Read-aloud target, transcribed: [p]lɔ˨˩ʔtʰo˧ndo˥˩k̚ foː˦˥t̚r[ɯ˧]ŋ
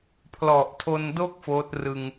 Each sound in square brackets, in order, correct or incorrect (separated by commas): incorrect, correct